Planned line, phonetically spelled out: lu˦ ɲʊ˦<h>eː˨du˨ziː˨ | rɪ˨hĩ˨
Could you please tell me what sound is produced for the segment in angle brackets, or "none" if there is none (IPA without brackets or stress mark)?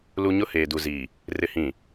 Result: h